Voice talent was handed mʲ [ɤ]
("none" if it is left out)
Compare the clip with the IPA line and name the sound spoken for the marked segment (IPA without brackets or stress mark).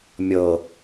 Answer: ɤ